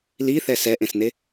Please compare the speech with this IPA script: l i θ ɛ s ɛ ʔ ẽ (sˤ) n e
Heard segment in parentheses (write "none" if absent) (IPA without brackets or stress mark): s